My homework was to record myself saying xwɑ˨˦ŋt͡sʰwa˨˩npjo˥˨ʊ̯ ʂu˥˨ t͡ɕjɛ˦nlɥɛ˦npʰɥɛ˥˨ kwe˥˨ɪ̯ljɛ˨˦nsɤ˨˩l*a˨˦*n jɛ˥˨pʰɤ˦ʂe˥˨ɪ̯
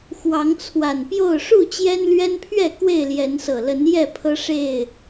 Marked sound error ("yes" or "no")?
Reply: yes